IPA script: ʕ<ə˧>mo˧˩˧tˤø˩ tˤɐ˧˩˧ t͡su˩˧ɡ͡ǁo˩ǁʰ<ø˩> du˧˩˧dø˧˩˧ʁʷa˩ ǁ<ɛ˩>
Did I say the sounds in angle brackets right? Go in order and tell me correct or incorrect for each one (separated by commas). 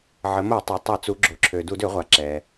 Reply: incorrect, correct, correct